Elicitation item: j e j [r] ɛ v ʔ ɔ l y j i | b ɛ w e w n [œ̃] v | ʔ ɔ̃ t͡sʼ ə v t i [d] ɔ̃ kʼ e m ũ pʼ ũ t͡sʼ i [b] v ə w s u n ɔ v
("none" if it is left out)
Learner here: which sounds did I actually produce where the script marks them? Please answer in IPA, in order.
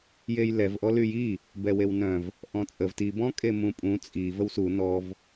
l, œ̃, b, none

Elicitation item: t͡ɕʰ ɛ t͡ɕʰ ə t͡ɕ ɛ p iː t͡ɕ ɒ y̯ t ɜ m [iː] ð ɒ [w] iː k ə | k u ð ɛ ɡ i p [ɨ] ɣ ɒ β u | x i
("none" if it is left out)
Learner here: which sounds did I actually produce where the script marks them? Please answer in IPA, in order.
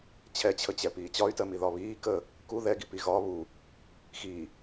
i, β, i

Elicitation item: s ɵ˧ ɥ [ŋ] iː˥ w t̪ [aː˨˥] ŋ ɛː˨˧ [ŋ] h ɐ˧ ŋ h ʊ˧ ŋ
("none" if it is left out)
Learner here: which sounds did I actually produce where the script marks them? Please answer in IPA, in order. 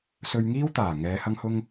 ŋ, aː˨˩, none

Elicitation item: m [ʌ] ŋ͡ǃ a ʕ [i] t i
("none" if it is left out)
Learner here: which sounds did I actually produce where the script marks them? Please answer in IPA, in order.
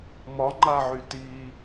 ɒ, y

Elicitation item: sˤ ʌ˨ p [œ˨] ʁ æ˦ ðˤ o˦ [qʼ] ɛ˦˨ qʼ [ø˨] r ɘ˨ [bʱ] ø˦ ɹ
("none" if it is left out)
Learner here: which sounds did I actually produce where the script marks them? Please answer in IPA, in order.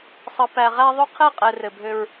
æ˨, qʰ, ɛ˨, bʱ

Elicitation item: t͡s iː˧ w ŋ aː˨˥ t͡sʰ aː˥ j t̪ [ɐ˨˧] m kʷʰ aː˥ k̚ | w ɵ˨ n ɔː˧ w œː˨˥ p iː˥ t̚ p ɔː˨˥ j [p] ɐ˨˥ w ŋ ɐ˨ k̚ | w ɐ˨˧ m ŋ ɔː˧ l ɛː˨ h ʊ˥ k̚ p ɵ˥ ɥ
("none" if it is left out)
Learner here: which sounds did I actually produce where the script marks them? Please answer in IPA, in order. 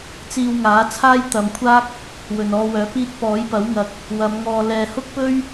ɐ˨, p

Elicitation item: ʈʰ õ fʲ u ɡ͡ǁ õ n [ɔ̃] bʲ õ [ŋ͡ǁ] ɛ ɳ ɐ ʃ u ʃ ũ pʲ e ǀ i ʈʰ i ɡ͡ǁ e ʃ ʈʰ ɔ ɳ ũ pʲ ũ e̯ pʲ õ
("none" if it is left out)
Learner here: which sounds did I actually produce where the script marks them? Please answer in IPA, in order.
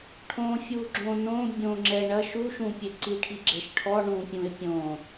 õ, ŋ͡ǁ

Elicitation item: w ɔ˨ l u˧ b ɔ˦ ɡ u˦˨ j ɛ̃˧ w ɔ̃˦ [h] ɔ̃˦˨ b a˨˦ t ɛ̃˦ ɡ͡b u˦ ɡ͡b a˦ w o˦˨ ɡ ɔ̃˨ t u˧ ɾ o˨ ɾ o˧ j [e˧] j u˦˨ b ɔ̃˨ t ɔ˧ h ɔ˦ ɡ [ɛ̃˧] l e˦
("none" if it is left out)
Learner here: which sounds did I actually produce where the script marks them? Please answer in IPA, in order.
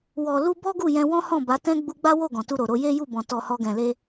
h, e˦, ɛ̃˧

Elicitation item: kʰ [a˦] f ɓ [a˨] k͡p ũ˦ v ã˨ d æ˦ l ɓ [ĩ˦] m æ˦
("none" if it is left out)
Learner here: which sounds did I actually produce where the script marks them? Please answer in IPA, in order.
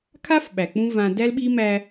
a˦, æ˨, i˦

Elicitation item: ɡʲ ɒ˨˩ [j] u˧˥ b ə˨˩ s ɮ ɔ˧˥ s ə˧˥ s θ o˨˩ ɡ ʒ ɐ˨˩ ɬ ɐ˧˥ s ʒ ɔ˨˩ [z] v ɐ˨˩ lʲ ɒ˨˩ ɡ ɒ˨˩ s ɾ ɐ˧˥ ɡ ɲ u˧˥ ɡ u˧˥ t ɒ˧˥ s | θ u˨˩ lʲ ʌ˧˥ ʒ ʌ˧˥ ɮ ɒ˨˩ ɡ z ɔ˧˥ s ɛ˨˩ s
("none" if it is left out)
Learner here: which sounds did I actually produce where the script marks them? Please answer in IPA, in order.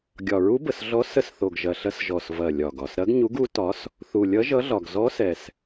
ɹ, s

